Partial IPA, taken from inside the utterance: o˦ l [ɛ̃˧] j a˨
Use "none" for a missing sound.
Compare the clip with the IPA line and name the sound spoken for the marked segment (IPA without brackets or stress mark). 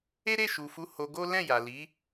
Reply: ɛ̃˦˨